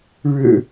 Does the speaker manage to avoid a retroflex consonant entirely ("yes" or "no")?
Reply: no